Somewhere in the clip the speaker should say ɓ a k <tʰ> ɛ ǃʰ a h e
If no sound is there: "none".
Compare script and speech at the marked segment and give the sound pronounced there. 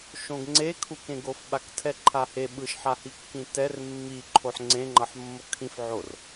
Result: tʰ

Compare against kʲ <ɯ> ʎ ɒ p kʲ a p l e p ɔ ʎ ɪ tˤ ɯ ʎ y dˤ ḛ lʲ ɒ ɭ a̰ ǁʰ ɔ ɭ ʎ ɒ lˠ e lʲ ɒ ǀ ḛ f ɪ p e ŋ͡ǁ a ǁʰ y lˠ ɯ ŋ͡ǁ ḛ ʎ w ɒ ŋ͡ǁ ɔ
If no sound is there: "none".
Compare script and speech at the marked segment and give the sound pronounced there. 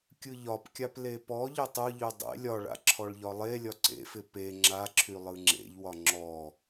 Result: ɯ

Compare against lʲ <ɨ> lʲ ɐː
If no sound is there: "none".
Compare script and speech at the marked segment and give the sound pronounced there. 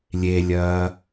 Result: e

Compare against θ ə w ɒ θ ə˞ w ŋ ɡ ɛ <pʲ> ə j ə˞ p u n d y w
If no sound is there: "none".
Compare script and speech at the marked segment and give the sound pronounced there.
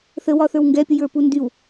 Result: pʲ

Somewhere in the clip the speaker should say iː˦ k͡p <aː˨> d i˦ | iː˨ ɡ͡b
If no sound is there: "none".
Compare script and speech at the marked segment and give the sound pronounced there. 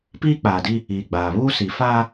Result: aː˨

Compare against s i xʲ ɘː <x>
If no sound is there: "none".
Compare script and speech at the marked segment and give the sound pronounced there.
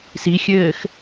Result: x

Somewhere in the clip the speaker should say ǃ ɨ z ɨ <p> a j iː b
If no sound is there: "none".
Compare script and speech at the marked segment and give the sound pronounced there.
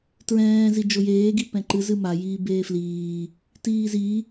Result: m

